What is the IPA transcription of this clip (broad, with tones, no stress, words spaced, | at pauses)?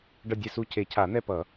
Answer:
ɖʌ˦˨dʲɛ˦˨su˦˨ cʰe˨˩˦cʰa˨˩˦n̪ɛ˦˨pʌ˨˩˦